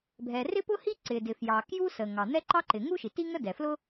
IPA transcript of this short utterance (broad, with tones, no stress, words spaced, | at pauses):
bʱɛ˩ rɪ˥pʊ˥hi˥ ǀɪ˩dɪ˩fjɑ˩ kju˥sə˩ ŋɑ˩n̪ɛ˥ ǃɑ˥ǃɪ˩ ŋu˥ʃi˩ti˥ ŋə˥dɛ˩flʊ˥